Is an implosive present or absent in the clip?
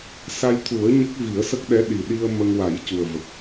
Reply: present